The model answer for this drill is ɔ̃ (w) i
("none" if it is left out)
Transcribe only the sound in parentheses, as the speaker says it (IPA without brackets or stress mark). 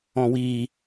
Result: w